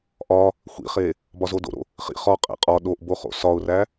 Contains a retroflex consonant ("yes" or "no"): no